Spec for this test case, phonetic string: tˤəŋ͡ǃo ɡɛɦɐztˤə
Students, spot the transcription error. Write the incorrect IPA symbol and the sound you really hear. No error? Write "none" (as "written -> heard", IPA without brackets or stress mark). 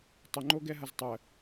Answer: none